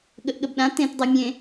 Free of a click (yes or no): yes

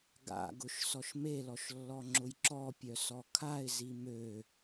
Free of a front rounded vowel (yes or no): no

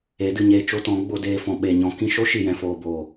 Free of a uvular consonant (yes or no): yes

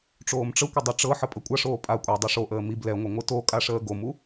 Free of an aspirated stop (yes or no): yes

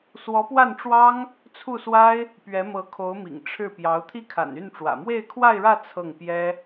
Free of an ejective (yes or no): yes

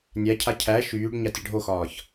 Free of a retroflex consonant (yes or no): no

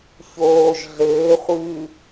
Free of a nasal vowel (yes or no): yes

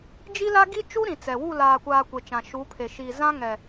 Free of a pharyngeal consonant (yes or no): yes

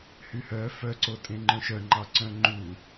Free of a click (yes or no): no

